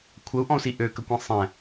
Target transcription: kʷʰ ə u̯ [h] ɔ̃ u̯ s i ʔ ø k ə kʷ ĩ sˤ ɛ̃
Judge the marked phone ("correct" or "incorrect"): incorrect